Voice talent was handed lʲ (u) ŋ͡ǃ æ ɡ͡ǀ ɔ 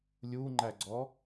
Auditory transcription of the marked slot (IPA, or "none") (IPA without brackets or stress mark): u